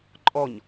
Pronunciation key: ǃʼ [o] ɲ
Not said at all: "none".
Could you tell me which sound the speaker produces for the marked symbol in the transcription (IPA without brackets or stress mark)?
ɔ